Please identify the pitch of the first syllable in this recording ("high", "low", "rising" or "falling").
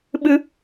high